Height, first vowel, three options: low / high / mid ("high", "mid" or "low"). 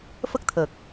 mid